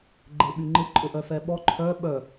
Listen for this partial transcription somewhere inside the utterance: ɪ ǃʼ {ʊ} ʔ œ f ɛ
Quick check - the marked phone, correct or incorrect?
correct